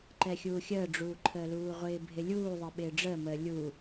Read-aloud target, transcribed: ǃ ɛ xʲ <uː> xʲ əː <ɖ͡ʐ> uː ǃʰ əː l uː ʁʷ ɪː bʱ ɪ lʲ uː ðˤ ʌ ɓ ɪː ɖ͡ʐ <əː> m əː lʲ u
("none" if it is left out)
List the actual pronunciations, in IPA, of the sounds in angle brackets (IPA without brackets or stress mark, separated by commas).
uː, ɖ͡ʐ, əː